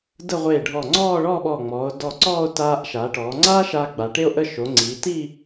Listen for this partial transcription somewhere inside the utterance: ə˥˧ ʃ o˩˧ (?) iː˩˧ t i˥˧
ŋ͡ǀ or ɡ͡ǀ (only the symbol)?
ŋ͡ǀ